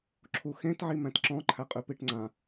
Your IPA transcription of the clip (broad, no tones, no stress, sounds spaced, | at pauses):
ǁʰ u x ẽ t ʕ i m æ̃ t ǁ ɔ̃ ǃʰ æ qʼ ʉ p i ʈ ŋ͡ǀ ã